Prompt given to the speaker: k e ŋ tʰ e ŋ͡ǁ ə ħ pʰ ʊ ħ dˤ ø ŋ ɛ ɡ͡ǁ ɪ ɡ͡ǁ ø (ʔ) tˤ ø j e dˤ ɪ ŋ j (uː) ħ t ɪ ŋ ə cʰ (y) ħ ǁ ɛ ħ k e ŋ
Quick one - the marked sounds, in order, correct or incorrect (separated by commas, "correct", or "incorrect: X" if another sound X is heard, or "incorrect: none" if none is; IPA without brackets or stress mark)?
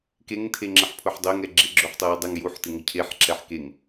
incorrect: ħ, incorrect: u, incorrect: e